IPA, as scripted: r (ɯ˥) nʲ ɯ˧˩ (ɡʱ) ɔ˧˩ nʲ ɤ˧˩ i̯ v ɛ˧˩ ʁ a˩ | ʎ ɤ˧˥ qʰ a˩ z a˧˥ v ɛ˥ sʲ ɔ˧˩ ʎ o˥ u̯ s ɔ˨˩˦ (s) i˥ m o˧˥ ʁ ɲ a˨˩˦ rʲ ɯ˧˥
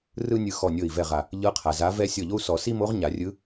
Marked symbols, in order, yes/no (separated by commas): yes, no, yes